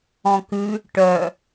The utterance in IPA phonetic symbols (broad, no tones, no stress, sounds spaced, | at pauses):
ɔ̃ k ʉ | ʈ œ